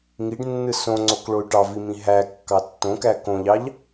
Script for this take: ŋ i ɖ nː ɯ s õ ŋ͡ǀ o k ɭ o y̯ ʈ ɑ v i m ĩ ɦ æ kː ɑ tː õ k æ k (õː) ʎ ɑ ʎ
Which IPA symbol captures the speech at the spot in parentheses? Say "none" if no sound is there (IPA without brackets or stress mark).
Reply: õ